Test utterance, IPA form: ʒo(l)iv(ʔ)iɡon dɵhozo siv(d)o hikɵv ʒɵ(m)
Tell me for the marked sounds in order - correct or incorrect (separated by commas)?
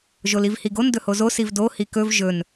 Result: correct, incorrect, correct, incorrect